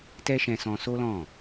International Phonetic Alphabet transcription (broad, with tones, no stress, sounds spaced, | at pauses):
t ɛ˦ ʃ ɛ̃˧ s ɔ̃˧ s o˦ l ɔ̃˦˨